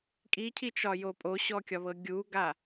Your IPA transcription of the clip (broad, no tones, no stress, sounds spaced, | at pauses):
kʼ i cʰ i t͡ʃ ɒ j o pʼ o ɕ ɔ kʲ ɒ β ɤ ɡʲ u ɡ a